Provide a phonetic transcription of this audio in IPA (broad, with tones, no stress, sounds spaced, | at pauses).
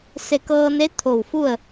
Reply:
s e˧˩ k ɤː˧ n e˧˥ t̪ʰ o˧˩ w f u˥˨ ə̯